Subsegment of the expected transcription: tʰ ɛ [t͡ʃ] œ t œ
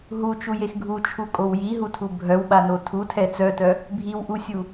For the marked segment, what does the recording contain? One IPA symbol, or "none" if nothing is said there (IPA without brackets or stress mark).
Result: t͡s